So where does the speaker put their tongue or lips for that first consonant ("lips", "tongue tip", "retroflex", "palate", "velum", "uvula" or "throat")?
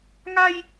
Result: velum